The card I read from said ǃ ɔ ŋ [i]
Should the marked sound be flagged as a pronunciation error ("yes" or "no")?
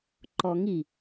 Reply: no